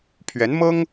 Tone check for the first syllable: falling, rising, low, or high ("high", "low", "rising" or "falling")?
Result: rising